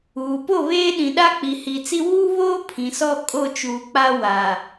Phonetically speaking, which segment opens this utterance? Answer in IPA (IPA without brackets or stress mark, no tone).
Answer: uː